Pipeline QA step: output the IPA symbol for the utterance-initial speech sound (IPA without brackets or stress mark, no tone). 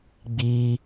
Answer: ɡ͡b